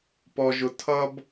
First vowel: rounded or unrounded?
rounded